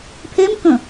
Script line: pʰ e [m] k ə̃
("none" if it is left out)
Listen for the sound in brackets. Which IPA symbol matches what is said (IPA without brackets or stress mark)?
m